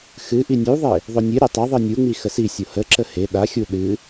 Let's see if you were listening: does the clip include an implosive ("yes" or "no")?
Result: yes